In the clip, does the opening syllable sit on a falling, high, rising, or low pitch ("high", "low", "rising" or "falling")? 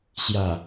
low